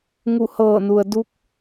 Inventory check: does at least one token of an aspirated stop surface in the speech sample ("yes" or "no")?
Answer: no